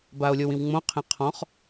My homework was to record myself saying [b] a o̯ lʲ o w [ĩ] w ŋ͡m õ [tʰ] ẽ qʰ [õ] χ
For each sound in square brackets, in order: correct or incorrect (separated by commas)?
correct, correct, incorrect, incorrect